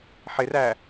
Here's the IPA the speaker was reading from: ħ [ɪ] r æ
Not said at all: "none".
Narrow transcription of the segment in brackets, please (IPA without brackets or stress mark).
ɪ